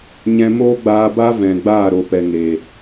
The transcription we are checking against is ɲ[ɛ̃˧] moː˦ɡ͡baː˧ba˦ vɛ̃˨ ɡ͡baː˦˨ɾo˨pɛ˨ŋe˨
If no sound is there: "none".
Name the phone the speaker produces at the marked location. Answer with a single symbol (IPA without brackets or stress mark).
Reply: ɛ̃˧